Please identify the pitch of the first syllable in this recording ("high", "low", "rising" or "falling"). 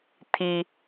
low